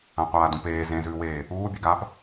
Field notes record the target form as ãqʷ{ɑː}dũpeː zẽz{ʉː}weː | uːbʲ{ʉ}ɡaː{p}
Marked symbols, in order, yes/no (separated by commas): no, yes, yes, yes